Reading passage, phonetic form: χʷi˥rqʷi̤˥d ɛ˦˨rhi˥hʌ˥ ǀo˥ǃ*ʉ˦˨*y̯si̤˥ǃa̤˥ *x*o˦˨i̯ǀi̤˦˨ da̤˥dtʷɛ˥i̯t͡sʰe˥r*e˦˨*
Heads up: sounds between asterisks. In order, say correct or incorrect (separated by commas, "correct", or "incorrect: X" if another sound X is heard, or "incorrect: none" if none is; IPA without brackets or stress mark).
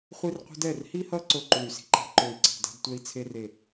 incorrect: u˦˨, incorrect: ǃ, correct